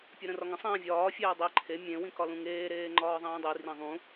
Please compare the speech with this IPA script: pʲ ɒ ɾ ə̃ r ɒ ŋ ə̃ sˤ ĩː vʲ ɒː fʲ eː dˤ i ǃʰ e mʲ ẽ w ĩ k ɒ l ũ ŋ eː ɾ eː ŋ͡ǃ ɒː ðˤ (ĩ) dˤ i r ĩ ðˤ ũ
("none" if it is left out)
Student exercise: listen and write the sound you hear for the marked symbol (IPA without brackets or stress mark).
ĩː